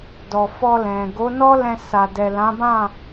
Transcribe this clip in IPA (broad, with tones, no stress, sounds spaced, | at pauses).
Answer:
d ɔ˨ f ɔ˧ l ɛ̃˨ ɡ o˨˦ n ɔ˦ l ɛ̃˧ s a˨ d ɛ˨ l ã˨˦ b ã˦˨